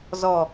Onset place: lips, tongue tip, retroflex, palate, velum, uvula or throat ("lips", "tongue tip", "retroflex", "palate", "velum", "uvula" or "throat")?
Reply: tongue tip